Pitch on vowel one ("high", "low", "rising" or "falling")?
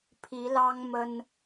rising